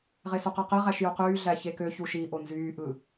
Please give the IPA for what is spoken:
ʁ e s u q æ q e ʁ æ ʃ j u q yː ɮ æ ç e k ø ç u ʃ i ʔ o n z yː ʔ ɯ

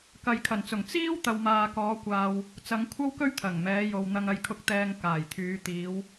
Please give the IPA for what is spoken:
k ɐ˨ j kʰ ɐ˨˩ n t͡s ʊ˨˩ ŋ t͡s iː˥ w t̪ ɐ˨ w m aː˨ k ɔː˨˧ kʷ aː˨ w | t͡s ɐ˨˧ ŋ kʷʰ ɐ˥ w k ɵ˥ ɥ t̪ʰ ɐ˨˩ ŋ m ɛː˨˧ j o˨ w n̪ ɐ˧ ŋ ɐ˧ j kʰ ʊ˧ k̚ t̪ ɛː˧ ŋ k aː˨˩ j t̪ʰ yː˨˧ t̪ iː˨˧ w

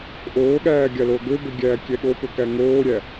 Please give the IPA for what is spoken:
ʔ oː ɠ æː ɡʲ a l oː ɡ ø b ø ɡʲ æː kʲ ɛ ɠ o p ø k æ ŋ oː ɾʲ æ

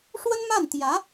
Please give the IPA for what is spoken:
ʂ w ə˥ n m a˥˩ n t̪ j ä˧˥

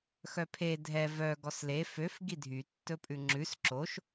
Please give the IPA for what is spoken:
x œ pʰ e dʱ ɛ v œ ɡ ɔ s l e f ø f ɡ i dʱ y tː ɵ pʼ ʉ ŋ͡ǁ ʉ s ǁ o ʃ

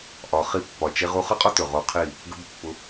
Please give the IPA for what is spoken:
ʔ ɒ˨ χ i˧ pː ɒ˨ t͡ʃ e˧ ʁ u˧ χ ʌ˦ qʼ ɔ˦ t ɵ˨ ʁ o˧ qʰ i˦˨ | ɡ ə˦ b pː ʊ˧

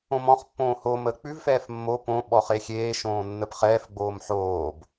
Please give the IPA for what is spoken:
õ m ɔ̃ χ pː õː h o m əː k͡p ʉ v f ɛː f mː o p õ ɓ ɔ χ e xʲ eː ʃ õː nː ə p χ ɛː f ɡ͡b oː m ħ oː b

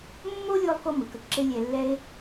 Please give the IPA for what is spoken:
mː o˦ lʲ o˧ lˠ k o˧ m ɯ˨ k ə˧ ǁ e˦ lʲ ɛ˧ lː ɛ˦ e̯

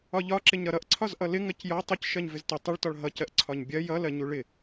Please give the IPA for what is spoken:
ɒ ʎ ɒ ǁ ɪ ɲ ɾ ʌ ɾ ʌ ʔ ǀʰ ɒ z ʔ ʌ l ɪ ŋ ɜ c j ɒ tˤ ʊ c ʃ ɜ ɲ v ɪ z t ʊ tˤ ɪ ɭ t ɒ ɭ ɦ ʌ c ɜ ʔ ǀʰ ɒ ɲ bʲ ɜ j ʌ l ɜ ɲ u ɭ ɪ

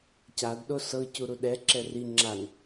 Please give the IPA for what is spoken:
c a d ɗ o s ɤ c u ɾ u ɗ ɛ ǁ ɛ r i ŋ͡ǁ a n

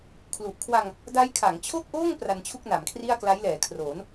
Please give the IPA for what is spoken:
kʰ l u˨˩ ʔ kʰ w a˧ ŋ | d a˦˥ j kʰ a˩˦ ŋ t͡ɕʰ o˥˩ k̚ ʔ oː˥˩ ŋ p r a˧ n t͡ɕʰ u˥˩ k̚ n a˩˦ m kʰ r i˥˩ a̯ k l a˦˥ j l ɛː˩˦ kʰ r oː˩˦ n

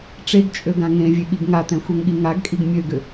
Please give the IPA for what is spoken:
ʈ͡ʂ e ɡ t͡ʃʼ ø ɡ ã ŋ ẽ vʲ e ɠ i ɡ ŋ a t ɛ̃ xʷ ɛ ŋ ɠ i ŋ a ɡ kʼ i ɡ mʲ ø ɡ ʏ

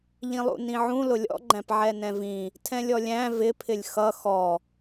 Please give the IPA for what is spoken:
ʎ ĩ lˠ ṵ n ĩ ʕ ũ l ʊ lʲ ɔ̰ ɡ͡ǃ æ̃ p ʕ ɛ n ɛ̃ v ĩ | tʰ ɛ̃ lʲ ɔ lʲ æ̃ v ɪ pʰ ɪ lʲ x ʌ x ɔ

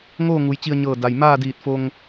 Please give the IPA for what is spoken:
ŋ oː˥˨ ŋ u˩˧ j t͡ɕ i˧ ə̯ ɲ ɤː˧˩ d a˩ j m aː˥˨ d iː˧˩ t̚ f o˧ ŋ

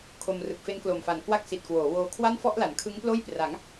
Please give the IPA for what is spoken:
kʰ o˧ m r ɯ˨˩ k̚ f e˦˥ n k l o˨˩ m f a˨˩ n k w a˦˥ k̚ s i˨˩ t̚ k w oː˩˦ w oː˧ kʰ w a˥˩ n f ɔ˥˩ ʔ l a˩˦ n kʰ ɯ˦˥ ŋ p l oː˥˩ j p r a˩˦ ŋ

